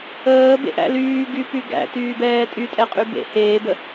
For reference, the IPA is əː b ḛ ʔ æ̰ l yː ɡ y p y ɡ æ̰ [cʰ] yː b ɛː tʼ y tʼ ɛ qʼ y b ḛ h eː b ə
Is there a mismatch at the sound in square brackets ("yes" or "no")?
yes